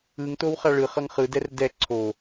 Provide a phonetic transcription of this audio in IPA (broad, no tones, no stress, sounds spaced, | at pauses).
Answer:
ɯ ŋ t o w χ a ɭ ɯ χ ʌ ŋ χ ɯ d ɛ r d ɛ ǀʰ o